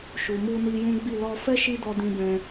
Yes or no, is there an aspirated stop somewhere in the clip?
no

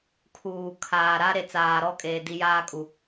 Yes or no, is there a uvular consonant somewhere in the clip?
no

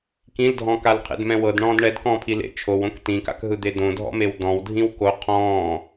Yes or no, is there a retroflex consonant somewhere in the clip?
yes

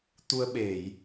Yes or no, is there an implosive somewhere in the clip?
yes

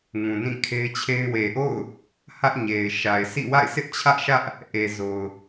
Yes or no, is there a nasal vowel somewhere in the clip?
yes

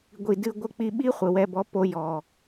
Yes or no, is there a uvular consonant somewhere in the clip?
yes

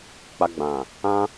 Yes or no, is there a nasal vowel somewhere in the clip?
yes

